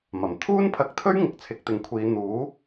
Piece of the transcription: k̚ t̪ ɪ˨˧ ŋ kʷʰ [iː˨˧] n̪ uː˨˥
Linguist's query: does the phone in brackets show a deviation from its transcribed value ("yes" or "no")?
no